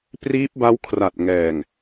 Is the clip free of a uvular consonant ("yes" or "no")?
yes